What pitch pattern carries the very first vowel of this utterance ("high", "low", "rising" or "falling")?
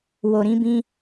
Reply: low